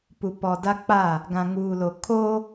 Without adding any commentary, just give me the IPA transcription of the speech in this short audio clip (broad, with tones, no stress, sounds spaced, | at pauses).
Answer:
p u˨ p ɔ˨ d a˦ k͡p a˦˨ | ɡ ã˨ ŋ uː˨ l o˨ kʰ oː˦